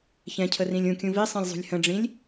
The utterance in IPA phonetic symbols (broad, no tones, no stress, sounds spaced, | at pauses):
ç ɛ̃ cʰ ə r ĩ lʲ ũ kʲ ũ v i sˤ ĩ lʲ zˤ ṳ lʲ h ə̃ ɖ͡ʐ ĩ lʲ